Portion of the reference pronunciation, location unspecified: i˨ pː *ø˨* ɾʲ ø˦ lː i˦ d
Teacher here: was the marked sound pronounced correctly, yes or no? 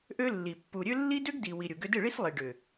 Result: no